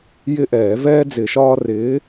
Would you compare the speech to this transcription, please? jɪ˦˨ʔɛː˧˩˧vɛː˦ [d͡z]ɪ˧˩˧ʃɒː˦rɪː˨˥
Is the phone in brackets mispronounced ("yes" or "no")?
no